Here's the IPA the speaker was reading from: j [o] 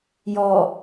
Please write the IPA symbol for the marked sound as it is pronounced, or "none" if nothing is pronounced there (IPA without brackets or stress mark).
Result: ɔ